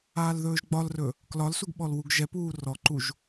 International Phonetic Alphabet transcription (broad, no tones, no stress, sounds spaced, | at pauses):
aː l ð ɵː ʒ ɡ͡b ɒ l r ɵ | k l ɒ l s u ɡ ɓ ɔ l w u ɡ ʒ ɛ p uː r ɔ ǃ u ʒ